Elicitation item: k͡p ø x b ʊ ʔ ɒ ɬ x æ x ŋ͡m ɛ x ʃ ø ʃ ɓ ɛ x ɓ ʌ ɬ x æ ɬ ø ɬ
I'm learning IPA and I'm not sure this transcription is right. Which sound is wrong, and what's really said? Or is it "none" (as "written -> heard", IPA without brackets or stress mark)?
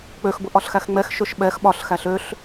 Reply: ʌ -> ɒ